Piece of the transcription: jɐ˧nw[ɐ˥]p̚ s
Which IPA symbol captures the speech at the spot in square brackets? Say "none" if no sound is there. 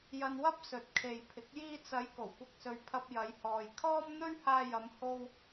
ɐ˥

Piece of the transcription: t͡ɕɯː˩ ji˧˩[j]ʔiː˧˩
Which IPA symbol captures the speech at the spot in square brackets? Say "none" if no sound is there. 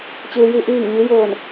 none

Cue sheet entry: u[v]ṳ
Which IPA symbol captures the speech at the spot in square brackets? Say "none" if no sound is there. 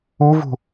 v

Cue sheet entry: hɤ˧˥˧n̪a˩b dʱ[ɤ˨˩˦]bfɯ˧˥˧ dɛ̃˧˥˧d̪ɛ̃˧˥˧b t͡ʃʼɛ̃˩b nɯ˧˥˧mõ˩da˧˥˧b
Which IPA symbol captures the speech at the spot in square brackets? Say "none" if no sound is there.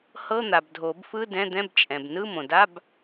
o˨˩˦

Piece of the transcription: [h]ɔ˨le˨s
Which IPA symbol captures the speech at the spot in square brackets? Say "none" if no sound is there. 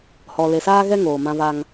h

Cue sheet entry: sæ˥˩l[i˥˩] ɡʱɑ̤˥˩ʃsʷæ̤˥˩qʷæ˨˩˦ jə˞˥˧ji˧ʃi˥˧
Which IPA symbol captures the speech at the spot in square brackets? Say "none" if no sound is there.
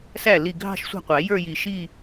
i˥˩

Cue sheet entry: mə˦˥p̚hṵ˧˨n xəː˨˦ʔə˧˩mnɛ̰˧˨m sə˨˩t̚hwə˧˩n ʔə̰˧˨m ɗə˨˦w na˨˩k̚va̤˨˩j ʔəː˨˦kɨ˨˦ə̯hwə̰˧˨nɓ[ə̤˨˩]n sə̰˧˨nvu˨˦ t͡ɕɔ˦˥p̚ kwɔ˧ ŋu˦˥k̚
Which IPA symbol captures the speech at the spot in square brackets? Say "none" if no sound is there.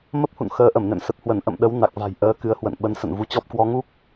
ə˨˦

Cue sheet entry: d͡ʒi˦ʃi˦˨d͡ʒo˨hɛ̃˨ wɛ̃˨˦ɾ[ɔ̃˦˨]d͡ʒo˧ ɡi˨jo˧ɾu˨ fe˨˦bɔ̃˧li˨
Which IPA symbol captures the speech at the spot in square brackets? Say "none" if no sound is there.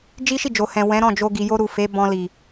ɔ̃˦˨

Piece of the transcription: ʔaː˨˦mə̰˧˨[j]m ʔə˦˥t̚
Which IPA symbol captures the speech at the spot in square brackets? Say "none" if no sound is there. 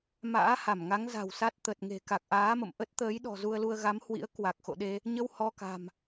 none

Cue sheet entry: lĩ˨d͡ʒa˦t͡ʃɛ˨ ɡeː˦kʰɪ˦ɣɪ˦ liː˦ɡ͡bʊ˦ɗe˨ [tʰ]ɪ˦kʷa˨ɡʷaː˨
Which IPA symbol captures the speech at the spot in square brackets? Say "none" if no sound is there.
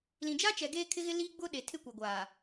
tʰ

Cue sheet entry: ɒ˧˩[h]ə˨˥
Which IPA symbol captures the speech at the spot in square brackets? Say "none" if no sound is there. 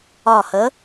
h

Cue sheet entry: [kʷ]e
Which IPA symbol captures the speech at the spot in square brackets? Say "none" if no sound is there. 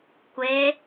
kʷ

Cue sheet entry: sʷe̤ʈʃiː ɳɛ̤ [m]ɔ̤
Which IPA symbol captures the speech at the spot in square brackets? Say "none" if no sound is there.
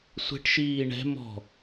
m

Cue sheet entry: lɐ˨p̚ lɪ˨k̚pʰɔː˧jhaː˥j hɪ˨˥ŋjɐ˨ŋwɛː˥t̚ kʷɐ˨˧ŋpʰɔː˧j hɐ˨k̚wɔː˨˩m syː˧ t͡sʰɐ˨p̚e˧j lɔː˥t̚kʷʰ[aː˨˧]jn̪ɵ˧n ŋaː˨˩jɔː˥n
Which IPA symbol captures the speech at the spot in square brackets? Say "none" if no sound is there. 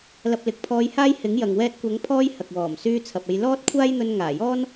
aː˥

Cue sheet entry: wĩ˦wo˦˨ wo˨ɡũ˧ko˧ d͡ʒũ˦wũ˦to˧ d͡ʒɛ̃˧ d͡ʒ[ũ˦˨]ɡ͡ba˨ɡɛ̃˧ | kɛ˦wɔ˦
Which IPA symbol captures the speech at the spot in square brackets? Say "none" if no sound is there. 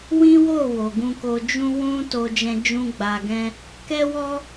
ũ˧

